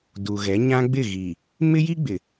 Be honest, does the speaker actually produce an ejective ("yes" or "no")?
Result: no